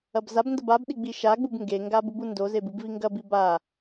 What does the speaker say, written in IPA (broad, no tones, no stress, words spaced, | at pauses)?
ɐbzabndɐb abɗi ɡ͡biʃaɡ͡bub ŋɡeŋɡab ubundozeb ɨbviŋɡɐbi ba